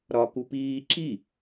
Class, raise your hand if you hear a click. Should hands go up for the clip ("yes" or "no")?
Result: yes